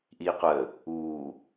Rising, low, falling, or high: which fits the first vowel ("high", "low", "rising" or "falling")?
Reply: low